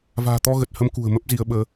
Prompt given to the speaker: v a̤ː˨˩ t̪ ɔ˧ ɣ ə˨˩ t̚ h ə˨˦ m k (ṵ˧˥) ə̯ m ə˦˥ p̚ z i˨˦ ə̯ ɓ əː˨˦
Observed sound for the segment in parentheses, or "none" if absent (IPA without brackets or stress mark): ṳ˨˩